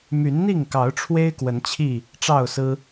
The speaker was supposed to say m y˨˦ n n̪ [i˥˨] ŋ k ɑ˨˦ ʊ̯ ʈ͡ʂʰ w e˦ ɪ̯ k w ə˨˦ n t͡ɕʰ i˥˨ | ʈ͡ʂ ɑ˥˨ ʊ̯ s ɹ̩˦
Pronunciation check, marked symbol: correct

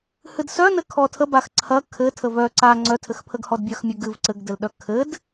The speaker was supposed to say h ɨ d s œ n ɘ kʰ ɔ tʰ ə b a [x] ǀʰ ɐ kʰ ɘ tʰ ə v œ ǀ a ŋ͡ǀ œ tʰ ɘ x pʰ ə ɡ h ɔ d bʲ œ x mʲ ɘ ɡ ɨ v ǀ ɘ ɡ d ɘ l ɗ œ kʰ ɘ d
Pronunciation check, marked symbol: correct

